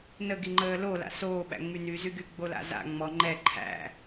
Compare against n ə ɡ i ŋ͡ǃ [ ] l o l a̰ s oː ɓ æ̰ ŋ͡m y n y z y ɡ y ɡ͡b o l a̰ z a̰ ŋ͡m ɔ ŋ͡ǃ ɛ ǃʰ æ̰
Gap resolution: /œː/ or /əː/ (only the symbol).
əː